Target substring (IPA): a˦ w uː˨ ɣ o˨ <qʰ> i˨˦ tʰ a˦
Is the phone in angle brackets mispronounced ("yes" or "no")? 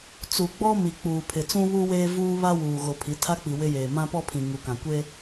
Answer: yes